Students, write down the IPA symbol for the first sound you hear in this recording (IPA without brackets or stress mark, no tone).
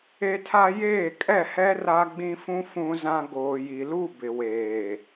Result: e